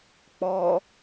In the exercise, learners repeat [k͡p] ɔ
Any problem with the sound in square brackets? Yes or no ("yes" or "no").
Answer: no